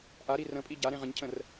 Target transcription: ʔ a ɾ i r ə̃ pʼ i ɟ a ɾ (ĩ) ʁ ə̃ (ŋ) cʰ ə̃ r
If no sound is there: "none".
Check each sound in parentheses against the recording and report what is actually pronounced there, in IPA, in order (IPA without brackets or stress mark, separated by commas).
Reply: ẽ, ɲ